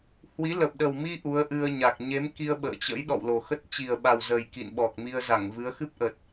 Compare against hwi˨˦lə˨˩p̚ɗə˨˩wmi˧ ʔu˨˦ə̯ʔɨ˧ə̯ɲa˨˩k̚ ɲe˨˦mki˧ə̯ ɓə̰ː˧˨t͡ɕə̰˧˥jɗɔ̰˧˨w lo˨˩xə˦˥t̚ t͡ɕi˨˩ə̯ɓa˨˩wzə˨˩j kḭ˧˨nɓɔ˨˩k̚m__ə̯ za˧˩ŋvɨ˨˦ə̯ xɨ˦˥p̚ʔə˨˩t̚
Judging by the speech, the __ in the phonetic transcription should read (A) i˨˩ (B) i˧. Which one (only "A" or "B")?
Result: B